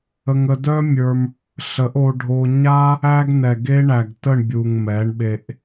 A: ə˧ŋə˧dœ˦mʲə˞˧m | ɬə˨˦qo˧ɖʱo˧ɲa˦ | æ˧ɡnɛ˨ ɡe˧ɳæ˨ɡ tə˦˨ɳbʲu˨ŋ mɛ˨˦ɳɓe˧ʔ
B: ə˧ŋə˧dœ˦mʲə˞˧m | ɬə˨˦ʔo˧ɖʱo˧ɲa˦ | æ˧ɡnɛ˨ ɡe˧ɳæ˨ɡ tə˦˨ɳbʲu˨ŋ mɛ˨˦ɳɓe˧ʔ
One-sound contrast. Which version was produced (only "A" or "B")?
B